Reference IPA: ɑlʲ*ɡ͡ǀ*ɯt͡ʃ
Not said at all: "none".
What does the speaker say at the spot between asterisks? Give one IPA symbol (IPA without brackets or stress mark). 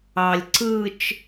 ǀ